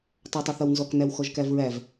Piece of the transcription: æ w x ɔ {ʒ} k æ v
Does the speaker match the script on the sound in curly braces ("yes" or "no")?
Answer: yes